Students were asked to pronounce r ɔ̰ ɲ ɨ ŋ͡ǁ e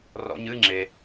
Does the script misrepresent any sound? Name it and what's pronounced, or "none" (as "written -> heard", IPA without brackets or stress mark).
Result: none